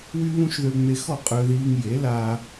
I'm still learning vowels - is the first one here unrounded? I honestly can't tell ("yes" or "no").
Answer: no